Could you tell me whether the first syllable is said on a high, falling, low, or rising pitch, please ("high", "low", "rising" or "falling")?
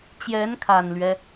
rising